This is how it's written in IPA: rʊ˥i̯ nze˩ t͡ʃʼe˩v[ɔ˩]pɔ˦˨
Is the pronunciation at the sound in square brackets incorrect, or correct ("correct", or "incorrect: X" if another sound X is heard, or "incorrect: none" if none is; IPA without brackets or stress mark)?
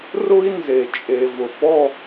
incorrect: ʊ˩